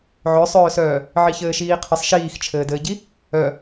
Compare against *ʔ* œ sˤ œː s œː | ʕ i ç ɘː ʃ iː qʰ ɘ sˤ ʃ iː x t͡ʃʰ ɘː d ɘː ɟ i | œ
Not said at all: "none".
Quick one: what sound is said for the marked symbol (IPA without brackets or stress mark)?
ʕ